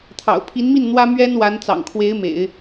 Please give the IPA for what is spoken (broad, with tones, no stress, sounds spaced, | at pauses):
t̪ʰ ɑ̰˨˩ ʊ̯ pʰ i˧˥ n m i˥˩ n n̪ w ä˥ m ɥ ɛ˥ n w a˧˥ n t͡s ɑ̰˨˩ ŋ kʰ w e˧˥ ɪ̯ m ḛ˨˩˦ ɪ̯